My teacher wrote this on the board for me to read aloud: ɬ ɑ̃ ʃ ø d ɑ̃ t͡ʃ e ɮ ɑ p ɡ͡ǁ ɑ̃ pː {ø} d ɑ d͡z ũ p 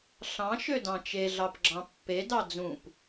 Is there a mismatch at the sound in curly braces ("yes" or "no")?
yes